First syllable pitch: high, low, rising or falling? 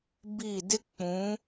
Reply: falling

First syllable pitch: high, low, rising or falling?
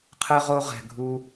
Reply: high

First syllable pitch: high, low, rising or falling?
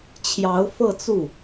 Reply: rising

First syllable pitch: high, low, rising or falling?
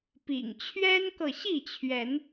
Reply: low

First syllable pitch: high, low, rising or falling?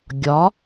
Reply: rising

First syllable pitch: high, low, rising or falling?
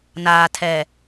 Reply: low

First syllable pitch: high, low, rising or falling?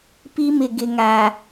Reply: high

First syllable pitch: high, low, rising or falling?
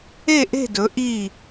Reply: falling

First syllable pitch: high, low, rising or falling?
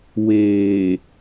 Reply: low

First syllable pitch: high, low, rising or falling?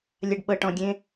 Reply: low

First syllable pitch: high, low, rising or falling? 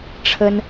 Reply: high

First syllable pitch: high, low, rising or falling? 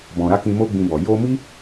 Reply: low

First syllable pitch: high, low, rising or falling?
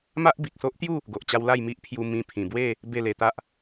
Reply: high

